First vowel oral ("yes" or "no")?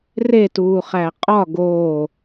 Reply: yes